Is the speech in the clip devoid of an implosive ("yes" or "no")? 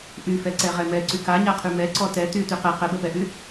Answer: yes